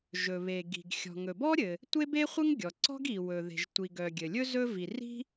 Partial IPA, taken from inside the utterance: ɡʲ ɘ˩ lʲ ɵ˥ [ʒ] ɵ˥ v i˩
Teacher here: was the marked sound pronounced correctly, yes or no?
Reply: no